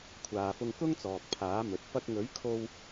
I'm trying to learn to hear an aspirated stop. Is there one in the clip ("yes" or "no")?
yes